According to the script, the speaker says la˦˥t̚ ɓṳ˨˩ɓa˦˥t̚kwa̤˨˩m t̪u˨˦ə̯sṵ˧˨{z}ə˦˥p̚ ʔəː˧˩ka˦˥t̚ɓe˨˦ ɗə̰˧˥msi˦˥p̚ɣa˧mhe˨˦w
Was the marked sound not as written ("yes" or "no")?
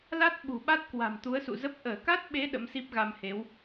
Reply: no